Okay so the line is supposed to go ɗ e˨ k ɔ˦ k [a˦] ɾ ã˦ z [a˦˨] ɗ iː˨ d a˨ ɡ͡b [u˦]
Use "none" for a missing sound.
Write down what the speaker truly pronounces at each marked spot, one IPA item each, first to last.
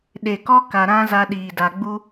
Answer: a˨, a˦, u˦

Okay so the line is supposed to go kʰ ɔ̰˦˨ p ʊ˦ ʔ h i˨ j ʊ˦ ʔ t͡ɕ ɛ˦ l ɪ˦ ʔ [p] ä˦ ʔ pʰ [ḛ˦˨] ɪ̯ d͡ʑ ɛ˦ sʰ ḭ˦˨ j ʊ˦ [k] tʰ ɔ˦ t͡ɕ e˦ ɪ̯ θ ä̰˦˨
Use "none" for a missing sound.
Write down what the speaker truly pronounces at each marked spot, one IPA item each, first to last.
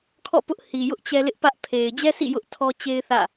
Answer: p, e˨, ʔ

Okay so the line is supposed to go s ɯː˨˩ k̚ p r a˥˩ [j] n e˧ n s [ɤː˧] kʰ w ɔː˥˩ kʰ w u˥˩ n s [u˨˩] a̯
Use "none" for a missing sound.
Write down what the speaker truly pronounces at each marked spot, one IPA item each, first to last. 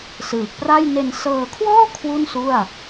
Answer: j, ɤː˧, u˥˩

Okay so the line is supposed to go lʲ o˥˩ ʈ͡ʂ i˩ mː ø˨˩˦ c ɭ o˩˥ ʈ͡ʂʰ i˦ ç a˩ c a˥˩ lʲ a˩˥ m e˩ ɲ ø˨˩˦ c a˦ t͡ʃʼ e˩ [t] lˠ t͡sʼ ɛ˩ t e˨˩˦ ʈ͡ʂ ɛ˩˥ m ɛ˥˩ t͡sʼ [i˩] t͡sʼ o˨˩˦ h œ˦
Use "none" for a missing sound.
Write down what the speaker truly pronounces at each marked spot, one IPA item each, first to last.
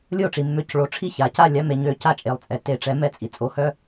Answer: none, i˩

